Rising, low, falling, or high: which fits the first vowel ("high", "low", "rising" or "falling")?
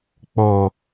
low